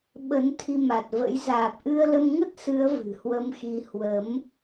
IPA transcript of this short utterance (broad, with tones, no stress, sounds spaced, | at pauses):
ɓ ə˨˦ n t̪ʰ i˧ m a˨˩ t̚ v ə̰˧˥ j z aː˨˩ p̚ ʔ ɨ˧ ə̯ l ə˧ m ŋ ə˦˥ t̚ s ɨ˨˦ ə̯ v ɨ̤˨˩ h w ə˨˦ m x i˧ h w ə˨˦ m